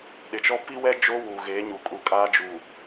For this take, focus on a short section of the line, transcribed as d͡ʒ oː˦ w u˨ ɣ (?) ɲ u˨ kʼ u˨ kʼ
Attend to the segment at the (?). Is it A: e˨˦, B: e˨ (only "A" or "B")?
A